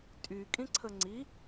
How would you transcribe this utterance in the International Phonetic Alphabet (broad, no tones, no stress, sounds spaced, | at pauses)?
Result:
tʼ y kʼ ĩ ǀʰ ə ŋ͡ǀ i